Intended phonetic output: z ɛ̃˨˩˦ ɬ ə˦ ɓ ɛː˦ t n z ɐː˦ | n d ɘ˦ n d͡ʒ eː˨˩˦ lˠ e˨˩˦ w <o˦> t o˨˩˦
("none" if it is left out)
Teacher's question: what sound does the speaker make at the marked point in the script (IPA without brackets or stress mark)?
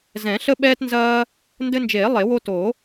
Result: o˦